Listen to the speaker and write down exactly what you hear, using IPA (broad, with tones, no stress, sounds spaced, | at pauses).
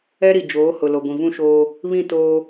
ɛ˦ ɾ i˨ d͡ʒ oː˨˦ h ʊ˨ l o˨ ɡʷ ĩ˨ v ũ˦ ʃ oː˦ | β ĩ˦˨ t oː˦